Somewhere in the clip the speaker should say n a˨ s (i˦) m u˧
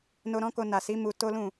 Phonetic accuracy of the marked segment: incorrect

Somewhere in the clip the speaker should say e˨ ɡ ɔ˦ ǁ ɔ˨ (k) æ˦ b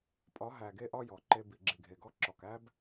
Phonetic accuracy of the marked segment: correct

